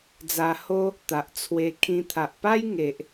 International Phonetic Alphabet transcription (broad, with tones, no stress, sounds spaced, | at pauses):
d͡z a˧ h o˦ | t̪ a˨ ʔ t͡sʰ w e˧ kʰ ĩ˧ t̪ʰ a˨ ʔ p a˦ j ŋ e˨ ʔ